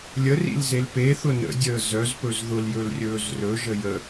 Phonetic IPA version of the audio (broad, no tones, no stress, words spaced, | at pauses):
lʲə rḭlzelpeθʊ nə̰ dʲəːzœzpɵz ðʊljɵl rʲɵːzrɵʒə jə